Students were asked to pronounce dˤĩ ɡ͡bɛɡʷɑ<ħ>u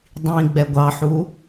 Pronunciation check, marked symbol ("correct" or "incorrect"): correct